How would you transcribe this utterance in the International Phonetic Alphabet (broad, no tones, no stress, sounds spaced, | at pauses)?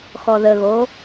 x ɔ ð ə ɣ o